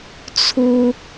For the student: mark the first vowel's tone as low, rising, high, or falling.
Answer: high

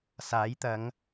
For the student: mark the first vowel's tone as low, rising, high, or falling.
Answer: rising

